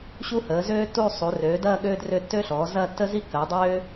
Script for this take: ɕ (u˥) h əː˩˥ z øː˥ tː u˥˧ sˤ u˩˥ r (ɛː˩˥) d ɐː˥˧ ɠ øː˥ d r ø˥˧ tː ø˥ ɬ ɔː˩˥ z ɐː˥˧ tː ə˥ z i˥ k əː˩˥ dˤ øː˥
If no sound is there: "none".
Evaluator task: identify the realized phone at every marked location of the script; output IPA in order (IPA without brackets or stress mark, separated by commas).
u˥, øː˩˥